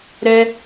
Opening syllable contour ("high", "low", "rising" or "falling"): high